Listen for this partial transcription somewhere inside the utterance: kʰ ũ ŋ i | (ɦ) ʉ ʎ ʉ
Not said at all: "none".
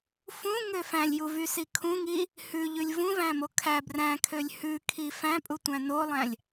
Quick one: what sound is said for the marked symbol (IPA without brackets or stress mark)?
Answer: h